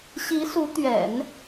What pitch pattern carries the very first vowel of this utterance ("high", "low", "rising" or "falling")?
rising